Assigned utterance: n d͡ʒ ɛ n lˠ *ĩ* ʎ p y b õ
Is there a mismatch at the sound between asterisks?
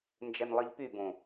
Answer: yes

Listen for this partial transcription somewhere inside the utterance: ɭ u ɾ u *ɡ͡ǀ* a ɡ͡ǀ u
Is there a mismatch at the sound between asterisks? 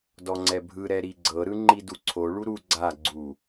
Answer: no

